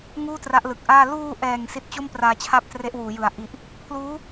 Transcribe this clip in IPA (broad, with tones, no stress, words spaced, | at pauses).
ŋuː˥˩tra˦˥ʔlɯ˨˩k̚ʔaː˥˩ luː˧ʔɛː˨˩ŋ si˦˥t̚t͡ɕo˥˩mpraː˧t͡ɕʰa˦˥p̚ tre˦˥ʔwuː˩˦jɯ˩˦a̯ ʔi˨˩ʔ | pʰluː˦˥